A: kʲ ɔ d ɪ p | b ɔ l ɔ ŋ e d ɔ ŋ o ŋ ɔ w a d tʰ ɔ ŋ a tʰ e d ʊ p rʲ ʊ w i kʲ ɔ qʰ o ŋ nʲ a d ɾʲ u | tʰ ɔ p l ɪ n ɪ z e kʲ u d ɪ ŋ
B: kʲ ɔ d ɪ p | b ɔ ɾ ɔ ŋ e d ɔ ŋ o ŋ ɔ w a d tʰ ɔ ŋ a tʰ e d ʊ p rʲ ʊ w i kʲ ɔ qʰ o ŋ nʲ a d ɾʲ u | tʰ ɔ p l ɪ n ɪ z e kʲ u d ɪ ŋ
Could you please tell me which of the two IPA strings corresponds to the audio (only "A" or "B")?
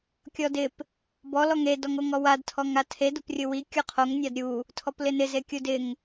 A